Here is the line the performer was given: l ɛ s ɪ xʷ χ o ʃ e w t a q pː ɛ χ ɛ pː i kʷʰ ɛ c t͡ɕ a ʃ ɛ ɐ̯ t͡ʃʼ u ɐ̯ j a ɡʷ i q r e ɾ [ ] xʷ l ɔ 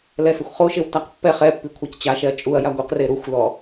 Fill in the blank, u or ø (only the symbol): u